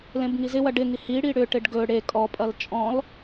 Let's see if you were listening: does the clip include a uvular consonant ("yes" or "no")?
no